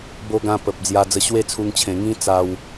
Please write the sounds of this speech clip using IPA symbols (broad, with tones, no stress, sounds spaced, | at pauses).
b o˧ ɡ ã˧ p ə˨ p̚ d͡z j a˧ d͡z ə˧ ɕ w e˥˧ t͡sʰ u˧ ŋ t͡ɕʰ ẽ˨˩ ŋ ĩ˦ t͡s a˧ w